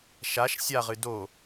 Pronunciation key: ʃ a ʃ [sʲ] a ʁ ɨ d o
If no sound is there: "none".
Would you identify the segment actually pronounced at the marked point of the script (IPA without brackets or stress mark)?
sʲ